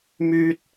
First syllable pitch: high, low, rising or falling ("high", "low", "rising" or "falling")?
high